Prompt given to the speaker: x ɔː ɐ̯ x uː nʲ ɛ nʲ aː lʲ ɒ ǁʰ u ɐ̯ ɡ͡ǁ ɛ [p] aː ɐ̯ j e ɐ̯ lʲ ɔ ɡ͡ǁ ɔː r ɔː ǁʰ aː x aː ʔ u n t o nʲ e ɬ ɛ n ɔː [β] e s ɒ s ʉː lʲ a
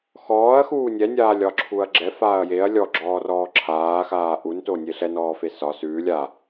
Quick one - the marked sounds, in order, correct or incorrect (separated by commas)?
incorrect, incorrect